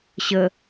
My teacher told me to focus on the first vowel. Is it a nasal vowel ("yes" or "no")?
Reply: no